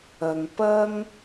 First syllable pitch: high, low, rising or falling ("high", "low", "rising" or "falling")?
low